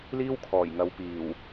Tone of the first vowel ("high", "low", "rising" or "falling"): high